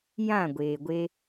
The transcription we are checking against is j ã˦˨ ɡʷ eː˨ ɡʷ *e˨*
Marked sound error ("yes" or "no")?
yes